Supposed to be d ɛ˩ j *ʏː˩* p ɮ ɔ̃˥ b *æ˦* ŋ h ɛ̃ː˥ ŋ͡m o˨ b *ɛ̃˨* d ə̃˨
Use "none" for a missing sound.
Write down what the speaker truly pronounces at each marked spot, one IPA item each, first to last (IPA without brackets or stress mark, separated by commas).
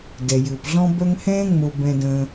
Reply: ʏː˩, œ˦, ɛ̃˨